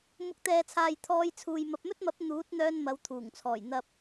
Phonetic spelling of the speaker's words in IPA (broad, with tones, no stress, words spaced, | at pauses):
mʊ˨k̚t̪ɛː˨t͡sʰaː˨j t̪ʰɔː˧jt͡sʰuː˨j mɐ˨p̚mɵ˥t̚mɐ˨˥p̚ n̪uː˨˥t̚ n̪œː˧n mɐ˨˧wt̪ʰuː˨˩ŋt͡sʰɔː˨˩j n̪ɐ˧p̚